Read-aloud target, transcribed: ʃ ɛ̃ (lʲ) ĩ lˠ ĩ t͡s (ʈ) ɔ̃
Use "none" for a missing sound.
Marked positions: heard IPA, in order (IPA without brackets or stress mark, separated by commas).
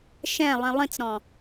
lˠ, ɾ